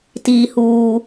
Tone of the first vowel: low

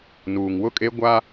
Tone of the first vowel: low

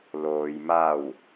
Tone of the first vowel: low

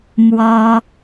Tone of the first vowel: high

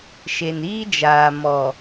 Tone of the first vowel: low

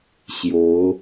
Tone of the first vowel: rising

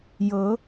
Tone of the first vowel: rising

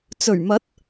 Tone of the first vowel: low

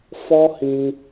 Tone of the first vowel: high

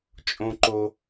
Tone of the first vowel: low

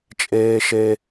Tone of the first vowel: high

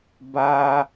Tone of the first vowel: low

